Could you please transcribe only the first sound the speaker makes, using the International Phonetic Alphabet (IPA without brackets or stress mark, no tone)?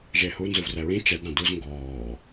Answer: ʒ